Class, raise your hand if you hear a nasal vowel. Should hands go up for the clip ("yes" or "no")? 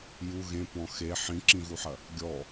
yes